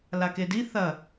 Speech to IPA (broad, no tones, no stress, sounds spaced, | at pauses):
l a k e d i θ ɐ